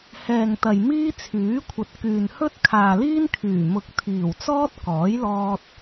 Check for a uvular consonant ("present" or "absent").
absent